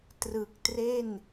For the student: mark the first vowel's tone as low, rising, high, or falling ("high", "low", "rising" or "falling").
low